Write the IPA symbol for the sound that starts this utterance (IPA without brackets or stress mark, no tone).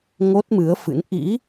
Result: ŋ